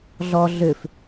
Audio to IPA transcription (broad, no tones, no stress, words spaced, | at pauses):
ɮɔ ɮʏf